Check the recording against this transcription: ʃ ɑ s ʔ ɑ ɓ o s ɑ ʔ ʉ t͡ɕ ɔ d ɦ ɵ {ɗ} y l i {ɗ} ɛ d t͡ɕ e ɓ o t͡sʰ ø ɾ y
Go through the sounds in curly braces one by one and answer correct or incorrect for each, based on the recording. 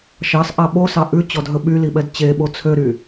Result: incorrect: ɓ, incorrect: ɓ

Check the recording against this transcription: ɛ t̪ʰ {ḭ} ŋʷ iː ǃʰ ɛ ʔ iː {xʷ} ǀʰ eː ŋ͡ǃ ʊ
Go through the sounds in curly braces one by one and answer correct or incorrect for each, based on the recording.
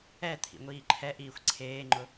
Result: correct, correct

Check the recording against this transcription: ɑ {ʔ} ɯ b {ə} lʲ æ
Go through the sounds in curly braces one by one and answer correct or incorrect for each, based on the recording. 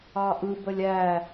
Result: correct, correct

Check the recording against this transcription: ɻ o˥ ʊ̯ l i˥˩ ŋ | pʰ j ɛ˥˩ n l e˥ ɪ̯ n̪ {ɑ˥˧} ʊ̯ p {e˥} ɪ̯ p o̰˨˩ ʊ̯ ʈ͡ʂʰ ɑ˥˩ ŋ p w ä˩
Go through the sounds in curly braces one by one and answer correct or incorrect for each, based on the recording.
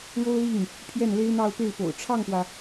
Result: correct, incorrect: e˥˩

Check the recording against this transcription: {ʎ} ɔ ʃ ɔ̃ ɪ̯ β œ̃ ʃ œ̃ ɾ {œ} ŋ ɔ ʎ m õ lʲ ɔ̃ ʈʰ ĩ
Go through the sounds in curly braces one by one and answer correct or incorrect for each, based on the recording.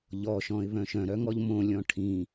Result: correct, correct

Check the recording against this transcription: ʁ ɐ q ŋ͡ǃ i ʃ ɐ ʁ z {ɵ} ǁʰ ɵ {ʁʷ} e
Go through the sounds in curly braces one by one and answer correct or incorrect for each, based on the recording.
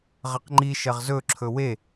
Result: correct, incorrect: w

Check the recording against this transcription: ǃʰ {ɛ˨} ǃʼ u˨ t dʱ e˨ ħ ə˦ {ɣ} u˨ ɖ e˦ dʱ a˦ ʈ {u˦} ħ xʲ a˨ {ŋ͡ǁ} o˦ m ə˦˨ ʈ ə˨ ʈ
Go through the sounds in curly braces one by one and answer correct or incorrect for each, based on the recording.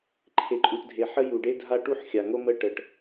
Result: incorrect: e˨, incorrect: j, correct, incorrect: ŋ

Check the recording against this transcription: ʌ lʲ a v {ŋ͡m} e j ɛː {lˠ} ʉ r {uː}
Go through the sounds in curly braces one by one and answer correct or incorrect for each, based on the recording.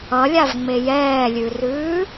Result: correct, incorrect: lʲ, incorrect: ʉː

